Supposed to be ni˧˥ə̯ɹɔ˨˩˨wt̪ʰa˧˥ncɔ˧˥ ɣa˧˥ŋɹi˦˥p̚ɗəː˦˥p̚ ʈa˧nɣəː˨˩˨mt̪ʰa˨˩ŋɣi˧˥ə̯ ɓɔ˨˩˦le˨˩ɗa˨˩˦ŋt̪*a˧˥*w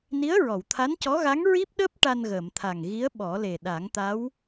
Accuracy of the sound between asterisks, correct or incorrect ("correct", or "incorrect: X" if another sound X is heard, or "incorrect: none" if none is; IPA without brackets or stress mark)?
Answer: correct